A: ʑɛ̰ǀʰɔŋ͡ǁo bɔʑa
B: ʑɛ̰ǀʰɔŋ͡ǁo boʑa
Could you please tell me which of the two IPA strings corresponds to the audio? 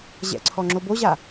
B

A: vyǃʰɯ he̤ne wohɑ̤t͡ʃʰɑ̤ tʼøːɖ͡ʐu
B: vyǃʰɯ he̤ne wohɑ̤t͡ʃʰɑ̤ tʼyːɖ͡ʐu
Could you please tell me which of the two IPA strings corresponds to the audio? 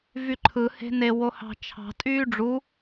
B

